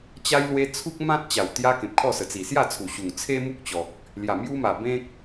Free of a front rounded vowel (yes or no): yes